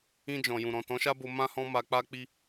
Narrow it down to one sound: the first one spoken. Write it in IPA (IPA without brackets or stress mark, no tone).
ĩ